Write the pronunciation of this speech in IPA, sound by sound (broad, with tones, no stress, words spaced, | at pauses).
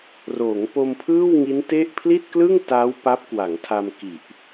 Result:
roː˩˦ŋ po˧mpʰɯː˥˩wŋi˦˥nte˥˩ʔ pʰli˥˩t̚klɯ˥˩ŋ ta˦˥w pa˦˥p̚kwa˩˦ŋtʰa˧m ki˨˩ʔ